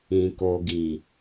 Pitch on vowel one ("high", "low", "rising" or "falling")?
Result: low